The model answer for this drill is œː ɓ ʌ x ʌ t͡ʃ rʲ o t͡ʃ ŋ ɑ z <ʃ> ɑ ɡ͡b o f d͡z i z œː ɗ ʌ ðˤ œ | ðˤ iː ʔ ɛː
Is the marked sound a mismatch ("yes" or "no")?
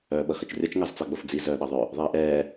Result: yes